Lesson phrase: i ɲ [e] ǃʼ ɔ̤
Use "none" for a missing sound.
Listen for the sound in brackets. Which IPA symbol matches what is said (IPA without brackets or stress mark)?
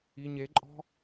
e